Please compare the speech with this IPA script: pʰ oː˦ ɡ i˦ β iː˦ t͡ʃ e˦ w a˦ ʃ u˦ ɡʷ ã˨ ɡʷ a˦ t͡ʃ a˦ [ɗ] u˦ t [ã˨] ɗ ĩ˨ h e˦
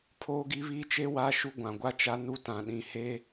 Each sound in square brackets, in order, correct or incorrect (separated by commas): incorrect, correct